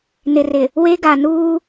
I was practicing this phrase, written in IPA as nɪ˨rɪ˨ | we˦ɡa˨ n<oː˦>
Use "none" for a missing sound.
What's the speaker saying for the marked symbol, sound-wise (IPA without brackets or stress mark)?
uː˦